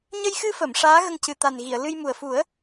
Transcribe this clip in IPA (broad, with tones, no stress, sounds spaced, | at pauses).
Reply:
ɲ ə˧ j x ɨ˧ f ə˨˩˨ m ʂ aː˧˥ ɣ ə˧ ŋ c ɨ˨˩ t̪ a˨˩ n ɣ i˨˩˨ ə̯ l ɨ˧ j m u˨˩ ə̯ f u˨˩˦ ə̯